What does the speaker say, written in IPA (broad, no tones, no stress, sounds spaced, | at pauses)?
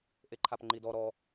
ʔ e ǃʰ a p ŋ͡ǃ i d ɔ ɾ ɔ